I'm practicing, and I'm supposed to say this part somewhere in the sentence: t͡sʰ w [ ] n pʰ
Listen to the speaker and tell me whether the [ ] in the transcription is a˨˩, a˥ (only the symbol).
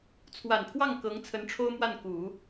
a˨˩